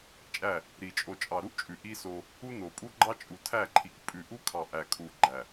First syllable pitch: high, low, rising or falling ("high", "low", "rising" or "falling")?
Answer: falling